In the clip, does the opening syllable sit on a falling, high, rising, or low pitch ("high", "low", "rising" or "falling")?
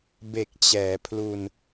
low